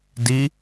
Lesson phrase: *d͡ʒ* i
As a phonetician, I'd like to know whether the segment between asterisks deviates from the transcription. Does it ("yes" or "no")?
yes